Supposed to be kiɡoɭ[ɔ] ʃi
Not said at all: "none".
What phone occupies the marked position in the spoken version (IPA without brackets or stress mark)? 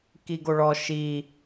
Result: ɔ